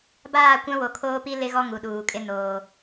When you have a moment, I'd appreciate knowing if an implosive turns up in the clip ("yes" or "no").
yes